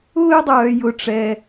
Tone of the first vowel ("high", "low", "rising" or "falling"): high